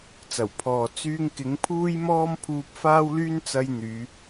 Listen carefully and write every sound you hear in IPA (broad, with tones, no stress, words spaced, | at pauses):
t͡sɐ˨˩wpʰɔː˨ t͡syː˧ŋkɪ˨˥ŋpʰuː˥jmɔː˥m pʰuː˧p̚faː˥wlyː˥nt͡sɐ˧j n̪yː˨˧